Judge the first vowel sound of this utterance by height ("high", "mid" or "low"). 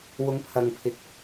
high